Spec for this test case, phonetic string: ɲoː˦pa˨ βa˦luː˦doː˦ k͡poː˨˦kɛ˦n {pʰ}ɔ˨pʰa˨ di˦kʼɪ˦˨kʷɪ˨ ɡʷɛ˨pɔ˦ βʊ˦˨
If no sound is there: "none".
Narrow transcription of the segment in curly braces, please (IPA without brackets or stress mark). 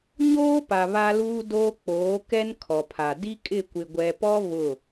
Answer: kʰ